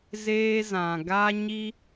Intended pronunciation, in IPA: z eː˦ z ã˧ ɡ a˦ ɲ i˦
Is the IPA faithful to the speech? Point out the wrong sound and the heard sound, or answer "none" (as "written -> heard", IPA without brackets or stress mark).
none